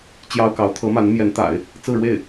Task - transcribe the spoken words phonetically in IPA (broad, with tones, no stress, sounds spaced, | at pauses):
t͡ɕ j ɑ˥ ʊ̯ k ɑ˧˥ ʊ̯ t̪ʰ ɤ˧˥ m a˧˥ n m j ɛ˧˥ n t̪ a̰˨˩˦ ɪ̯ | t͡s ɹ̩˥˧ ɻ w e˥˩ ɪ̯